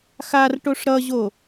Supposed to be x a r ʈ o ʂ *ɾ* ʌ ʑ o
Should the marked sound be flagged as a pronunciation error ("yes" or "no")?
no